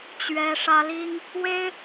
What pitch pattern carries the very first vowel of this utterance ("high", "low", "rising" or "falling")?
high